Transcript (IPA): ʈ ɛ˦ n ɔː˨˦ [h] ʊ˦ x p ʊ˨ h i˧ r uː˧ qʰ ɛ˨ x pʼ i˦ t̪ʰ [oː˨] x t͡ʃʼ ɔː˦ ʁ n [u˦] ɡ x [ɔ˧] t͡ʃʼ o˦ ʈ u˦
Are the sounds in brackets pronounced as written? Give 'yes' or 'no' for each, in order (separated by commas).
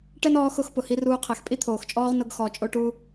no, yes, no, yes